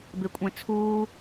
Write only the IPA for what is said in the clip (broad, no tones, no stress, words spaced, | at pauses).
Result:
bekʷʼẽt͡sʰuː